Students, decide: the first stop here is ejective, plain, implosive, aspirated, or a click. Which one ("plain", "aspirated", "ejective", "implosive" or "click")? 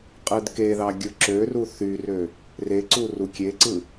ejective